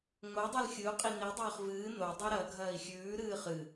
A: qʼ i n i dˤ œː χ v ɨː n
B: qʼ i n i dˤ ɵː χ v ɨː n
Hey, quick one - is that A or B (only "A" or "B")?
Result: B